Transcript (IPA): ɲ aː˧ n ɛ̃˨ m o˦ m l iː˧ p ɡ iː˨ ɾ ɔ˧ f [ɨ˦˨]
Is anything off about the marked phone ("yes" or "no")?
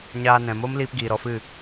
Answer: no